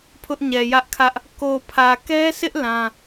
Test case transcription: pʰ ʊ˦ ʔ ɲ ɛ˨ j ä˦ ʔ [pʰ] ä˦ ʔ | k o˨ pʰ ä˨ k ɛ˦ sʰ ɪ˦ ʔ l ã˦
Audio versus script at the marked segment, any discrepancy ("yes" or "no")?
yes